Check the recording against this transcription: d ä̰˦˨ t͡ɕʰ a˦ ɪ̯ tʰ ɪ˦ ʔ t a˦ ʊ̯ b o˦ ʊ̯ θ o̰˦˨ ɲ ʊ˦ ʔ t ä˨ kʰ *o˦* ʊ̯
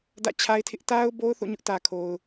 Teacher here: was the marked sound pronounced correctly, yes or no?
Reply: no